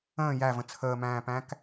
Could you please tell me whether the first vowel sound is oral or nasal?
nasal